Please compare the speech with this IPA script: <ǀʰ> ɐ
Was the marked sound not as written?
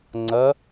yes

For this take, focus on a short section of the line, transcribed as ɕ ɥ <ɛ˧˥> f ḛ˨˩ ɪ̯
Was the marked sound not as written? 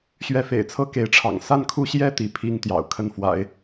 no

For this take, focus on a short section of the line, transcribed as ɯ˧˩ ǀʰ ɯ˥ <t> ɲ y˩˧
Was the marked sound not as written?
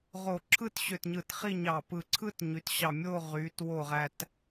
no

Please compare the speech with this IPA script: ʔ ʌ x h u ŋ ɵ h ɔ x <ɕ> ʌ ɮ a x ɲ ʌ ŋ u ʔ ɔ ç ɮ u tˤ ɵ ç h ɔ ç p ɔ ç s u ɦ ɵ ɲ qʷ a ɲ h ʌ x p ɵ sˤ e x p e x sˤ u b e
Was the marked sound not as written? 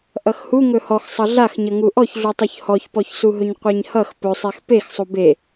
yes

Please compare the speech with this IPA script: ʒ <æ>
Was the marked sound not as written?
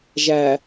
no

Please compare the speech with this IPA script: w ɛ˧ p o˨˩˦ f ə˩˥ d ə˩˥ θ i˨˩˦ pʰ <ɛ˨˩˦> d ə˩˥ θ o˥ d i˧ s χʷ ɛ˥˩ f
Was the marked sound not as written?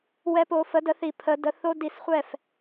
yes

